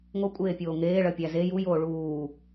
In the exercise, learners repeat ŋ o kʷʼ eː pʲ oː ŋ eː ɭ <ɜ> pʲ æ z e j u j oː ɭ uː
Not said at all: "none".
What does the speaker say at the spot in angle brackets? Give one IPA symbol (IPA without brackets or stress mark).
ɜ